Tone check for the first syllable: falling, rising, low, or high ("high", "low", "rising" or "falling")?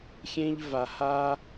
high